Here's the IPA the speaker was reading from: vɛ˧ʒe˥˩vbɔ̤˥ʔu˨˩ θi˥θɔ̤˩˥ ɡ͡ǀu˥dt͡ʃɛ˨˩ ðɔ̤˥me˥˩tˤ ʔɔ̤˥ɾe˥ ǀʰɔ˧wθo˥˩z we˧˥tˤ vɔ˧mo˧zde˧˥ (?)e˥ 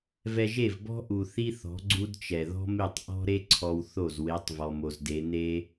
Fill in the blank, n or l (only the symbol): n